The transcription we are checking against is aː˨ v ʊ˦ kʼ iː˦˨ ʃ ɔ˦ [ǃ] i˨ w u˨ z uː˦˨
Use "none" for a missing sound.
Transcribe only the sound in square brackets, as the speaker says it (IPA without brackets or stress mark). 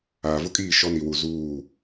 n